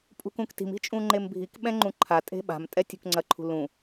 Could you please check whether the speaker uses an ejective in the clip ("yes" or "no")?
yes